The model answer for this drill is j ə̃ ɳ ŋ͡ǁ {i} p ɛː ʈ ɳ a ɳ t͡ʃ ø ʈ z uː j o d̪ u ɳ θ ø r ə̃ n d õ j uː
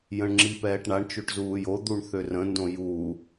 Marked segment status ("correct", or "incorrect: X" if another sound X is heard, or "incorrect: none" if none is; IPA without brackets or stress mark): correct